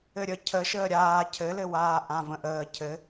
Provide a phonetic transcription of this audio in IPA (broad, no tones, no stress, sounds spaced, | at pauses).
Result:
ɘ ɾʲ ə cʰ ə ʃ əː ɾʲ aː cʰ ɘ l ɘ w aː ʔ ã v ə̃ ʔ əː cʰ ɘ